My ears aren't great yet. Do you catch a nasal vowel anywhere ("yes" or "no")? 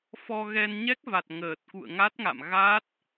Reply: no